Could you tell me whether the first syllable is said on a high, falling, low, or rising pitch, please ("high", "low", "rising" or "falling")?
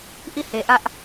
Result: falling